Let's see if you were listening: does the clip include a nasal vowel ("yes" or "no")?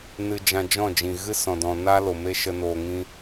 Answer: yes